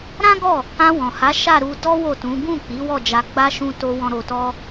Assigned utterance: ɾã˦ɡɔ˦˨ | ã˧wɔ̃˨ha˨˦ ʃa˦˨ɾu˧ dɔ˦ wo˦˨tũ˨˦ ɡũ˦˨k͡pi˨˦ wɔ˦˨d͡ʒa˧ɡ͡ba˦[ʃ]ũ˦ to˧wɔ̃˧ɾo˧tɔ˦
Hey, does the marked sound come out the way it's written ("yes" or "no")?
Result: yes